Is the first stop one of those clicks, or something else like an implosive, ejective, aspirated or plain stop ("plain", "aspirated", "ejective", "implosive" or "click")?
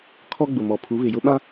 aspirated